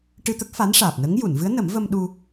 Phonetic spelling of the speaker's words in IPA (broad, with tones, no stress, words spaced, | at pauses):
ʈɨ˧t̪ə˦˥k̚ fa˧˥nʂaː˨˩p̚nə˧˥ŋ ju˨˩˨nvɨ˧˥ə̯ nə˨˩˦mvə˧m ɗu˧